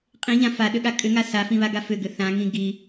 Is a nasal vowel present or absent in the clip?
present